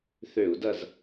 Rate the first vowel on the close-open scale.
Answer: mid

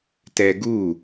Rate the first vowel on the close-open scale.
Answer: mid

